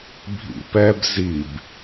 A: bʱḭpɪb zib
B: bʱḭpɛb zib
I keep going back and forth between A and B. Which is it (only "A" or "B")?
B